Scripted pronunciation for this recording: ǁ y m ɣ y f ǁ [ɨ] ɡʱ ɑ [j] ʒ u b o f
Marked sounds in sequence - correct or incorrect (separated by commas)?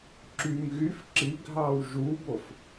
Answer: incorrect, incorrect